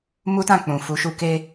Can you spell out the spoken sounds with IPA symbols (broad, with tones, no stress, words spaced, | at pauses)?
mu˦tã˦˨k͡pũ˨ fu˨˦ʃu˦˨ ke˧